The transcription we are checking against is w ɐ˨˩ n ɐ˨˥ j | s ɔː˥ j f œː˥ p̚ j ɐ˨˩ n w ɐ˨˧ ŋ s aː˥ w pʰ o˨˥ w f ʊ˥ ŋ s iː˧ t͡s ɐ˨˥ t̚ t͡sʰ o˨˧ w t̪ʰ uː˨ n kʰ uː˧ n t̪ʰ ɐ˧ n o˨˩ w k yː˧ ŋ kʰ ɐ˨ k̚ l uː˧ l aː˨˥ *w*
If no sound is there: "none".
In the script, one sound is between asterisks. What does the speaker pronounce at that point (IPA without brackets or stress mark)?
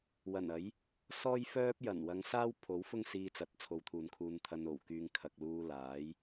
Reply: j